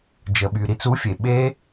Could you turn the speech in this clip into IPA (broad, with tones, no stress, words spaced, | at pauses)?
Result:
d͡ʒə˩ɓy˩ ɾi˧t͡su˨˥fʲe˩ ɓe˦˥